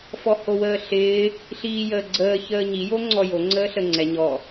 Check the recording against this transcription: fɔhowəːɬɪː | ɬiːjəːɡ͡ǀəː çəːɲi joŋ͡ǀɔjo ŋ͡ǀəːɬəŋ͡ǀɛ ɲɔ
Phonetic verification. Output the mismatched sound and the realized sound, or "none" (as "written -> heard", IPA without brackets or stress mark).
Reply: none